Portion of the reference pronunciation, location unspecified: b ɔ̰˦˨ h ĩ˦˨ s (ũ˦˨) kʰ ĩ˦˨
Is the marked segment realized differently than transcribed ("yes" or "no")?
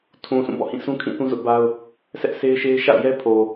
yes